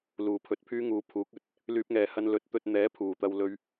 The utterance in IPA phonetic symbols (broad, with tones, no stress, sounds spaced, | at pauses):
l uː˨ pʰ ɵ˨˥ t̚ pʰ yː˥ ŋ uː˨˧ pʰ uː˨˥ k̚ ɵ˧ t̚ | l yː˧ p̚ ŋ ɛː˨ h ɐ˧ n l ɵ˨˥ t̚ t̪ ɵ˧ t̚ n̪ ɛː˨˥ pʰ uː˨˩ t̪ ɐ˨ w l ɵ˨ ɥ